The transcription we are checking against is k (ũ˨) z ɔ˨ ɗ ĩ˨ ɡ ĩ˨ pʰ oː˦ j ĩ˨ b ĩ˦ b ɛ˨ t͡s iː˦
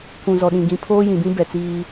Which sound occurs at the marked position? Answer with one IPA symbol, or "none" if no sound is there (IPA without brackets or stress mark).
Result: ũ˨